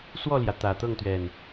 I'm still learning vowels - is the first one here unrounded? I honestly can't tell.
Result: no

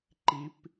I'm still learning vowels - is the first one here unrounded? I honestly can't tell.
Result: yes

